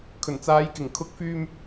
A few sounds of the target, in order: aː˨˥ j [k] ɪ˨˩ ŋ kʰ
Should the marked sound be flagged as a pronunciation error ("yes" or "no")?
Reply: no